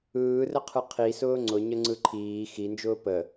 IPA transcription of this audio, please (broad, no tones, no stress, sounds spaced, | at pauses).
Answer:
ɯː r ə qʰ ɯ qʰ i s ʊː ŋ͡ǀ ʊ ɲ ə ŋ͡ǀ ɯ ǃʰ iː x i n d͡ʒ ʊː p ə